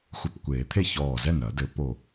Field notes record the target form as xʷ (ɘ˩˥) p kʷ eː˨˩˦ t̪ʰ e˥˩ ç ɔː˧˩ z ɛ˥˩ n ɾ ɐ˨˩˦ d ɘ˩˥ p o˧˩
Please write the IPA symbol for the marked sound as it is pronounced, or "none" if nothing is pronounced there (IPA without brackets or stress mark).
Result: ɘ˧˩